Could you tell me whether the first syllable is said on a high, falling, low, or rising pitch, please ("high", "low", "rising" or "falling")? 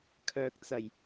low